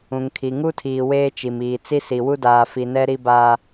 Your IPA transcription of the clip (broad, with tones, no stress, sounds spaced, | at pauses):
ũ˨ ŋ kʰ i˨ ŋ u˦ tʰ iː˨ w eː˦ t͡ʃ i˨ m iː˨ t͡s i˦ s i˨ w u˦ d aː˨ f i˨ n ɛ˦ ɾ i˦ b aː˦